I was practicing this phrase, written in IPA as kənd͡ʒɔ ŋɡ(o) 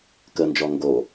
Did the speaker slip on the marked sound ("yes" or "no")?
no